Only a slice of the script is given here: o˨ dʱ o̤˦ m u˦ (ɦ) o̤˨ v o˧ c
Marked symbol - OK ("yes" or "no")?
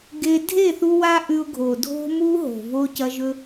yes